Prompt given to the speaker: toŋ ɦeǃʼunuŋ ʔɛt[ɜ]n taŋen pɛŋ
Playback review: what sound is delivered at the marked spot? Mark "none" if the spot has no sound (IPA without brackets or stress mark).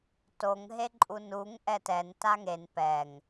ɛ